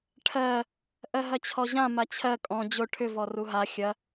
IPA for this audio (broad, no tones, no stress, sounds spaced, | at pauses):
ʈʰ ɜ | ʔ ɜ ɦ ɐ t͡ɕʰ ɔ ʑ ã m a t͡ɕʰ ɜ kʼ ɔ̃ d͡ʑ o ʈʰ ʏ v ɔ r u ɦ a xʲ ɐ